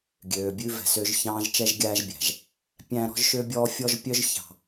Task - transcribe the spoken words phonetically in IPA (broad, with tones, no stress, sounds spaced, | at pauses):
ɡʲ øː˨ bʲ ʉ˦ v ɛ̤˨ s ø˦ ʒ ç ɑ̃ː˦ ʒ t͡ʃ ɛ˦ ʒ ɡʲ æː˦ ʒ bʲ æ̤˨ ʒ | pʲ æ̃˦ ɾ ɔ̤˦ ʒ ʃ ø˦ bʲ ɔː˦ fʲ ɔ˦ ʒ pʲ œ˦ ʒ ç ɑ̤˨